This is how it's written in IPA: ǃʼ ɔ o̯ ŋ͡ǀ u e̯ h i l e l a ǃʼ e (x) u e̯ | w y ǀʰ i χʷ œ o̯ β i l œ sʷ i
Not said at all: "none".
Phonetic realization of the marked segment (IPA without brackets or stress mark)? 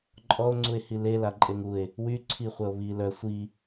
ŋ